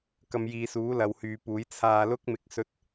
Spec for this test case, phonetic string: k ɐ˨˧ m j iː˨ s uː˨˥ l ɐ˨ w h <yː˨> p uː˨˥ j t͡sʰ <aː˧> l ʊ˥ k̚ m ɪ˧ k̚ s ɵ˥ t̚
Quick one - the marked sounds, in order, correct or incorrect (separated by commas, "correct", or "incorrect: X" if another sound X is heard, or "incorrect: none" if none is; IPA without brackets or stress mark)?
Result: correct, correct